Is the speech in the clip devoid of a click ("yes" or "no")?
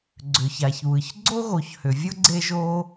no